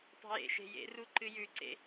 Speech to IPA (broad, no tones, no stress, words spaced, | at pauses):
tˤe̤jḛ ʃe̤jḛru ǃɨjʉǀḛ